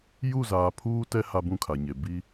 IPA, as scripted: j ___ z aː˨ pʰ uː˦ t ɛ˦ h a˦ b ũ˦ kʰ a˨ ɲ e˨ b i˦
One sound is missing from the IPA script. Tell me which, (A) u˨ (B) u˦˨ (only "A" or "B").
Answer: B